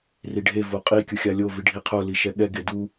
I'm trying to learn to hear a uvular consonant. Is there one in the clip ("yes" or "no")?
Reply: yes